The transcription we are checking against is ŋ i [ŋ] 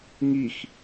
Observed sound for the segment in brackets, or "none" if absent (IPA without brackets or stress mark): x